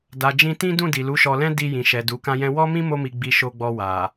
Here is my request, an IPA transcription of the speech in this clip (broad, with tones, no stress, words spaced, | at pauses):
da˨d͡ʒĩ˧tĩ˦dũ˦˨ di˨lu˨˦ʃɔ˧lɛ̃˦ di˧jĩ˨ʃɛ˨ du˨˦kã˦jɛ̃˦ wɔ˦mĩ˦ mo˦mi˧ ɡ͡bi˧ʃo˧ɡ͡bɔ˧ wa˨